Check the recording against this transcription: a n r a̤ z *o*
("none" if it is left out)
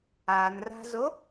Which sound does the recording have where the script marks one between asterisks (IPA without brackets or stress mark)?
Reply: o